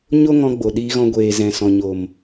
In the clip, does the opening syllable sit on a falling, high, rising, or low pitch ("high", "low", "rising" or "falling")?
high